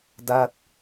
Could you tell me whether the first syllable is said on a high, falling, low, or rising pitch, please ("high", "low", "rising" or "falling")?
falling